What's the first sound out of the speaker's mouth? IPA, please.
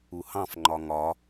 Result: u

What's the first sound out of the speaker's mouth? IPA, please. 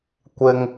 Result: kʷ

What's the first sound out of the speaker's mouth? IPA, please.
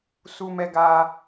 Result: s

